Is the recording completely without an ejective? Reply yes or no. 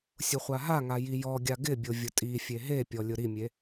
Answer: no